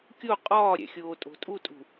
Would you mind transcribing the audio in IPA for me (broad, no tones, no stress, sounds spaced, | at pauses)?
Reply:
kʲ o qʼ ɒː ɾʲ æ̰ xʲ oː tʼ o̤ tʼ u tʼ ṳ